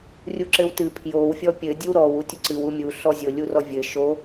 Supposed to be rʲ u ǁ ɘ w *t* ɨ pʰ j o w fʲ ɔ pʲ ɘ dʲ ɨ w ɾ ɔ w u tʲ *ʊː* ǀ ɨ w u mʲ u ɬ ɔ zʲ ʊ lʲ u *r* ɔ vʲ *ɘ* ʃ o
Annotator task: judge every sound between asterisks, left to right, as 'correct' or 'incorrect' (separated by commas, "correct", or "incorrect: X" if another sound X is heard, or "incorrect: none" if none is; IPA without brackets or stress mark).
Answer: correct, incorrect: ʊ, correct, correct